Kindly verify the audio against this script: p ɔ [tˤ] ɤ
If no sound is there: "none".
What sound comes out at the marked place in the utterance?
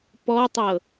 tˤ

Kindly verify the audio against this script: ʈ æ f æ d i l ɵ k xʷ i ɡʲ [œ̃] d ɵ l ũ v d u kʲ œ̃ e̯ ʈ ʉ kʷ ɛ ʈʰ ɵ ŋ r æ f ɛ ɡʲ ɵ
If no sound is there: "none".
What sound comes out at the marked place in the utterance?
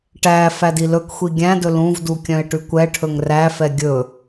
æ̃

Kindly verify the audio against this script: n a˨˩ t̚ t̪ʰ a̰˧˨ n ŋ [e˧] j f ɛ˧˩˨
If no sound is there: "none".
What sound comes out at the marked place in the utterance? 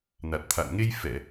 e˧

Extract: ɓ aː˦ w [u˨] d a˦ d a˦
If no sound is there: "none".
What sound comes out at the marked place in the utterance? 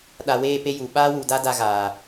u˨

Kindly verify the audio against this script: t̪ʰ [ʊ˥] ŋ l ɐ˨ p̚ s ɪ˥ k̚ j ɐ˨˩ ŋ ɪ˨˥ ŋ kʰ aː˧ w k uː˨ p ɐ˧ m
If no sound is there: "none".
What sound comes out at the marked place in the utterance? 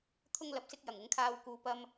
ʊ˥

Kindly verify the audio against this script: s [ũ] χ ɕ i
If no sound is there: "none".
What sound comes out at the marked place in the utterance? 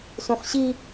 ũ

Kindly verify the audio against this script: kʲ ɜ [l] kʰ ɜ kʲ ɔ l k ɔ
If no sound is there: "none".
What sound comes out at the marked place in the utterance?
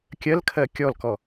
l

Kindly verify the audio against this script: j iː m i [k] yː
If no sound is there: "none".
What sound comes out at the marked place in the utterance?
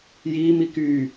k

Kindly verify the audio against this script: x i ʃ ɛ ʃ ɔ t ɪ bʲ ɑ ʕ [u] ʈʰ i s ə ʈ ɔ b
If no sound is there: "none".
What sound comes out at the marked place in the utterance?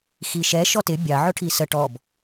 ʊ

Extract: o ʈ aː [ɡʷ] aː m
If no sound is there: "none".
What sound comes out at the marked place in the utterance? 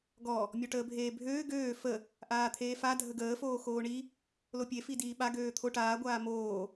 ɡʷ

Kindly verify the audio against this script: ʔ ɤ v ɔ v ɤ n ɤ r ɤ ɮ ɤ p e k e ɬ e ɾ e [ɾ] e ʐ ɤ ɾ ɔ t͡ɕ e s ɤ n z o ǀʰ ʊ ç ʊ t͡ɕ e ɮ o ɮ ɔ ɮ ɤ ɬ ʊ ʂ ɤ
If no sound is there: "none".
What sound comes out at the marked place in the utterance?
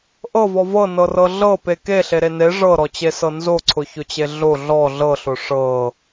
n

